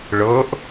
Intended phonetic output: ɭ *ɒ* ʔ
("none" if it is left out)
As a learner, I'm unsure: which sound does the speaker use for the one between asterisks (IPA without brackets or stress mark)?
ʌ